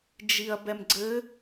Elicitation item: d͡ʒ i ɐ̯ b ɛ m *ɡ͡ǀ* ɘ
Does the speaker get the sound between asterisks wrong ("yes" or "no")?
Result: no